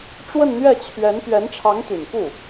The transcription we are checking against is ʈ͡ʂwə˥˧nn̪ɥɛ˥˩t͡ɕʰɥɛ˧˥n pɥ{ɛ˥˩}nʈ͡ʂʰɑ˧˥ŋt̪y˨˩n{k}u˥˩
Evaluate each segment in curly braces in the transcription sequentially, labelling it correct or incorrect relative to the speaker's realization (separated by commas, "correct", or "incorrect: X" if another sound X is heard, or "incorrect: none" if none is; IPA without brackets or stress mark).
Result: incorrect: ɛ˧˥, correct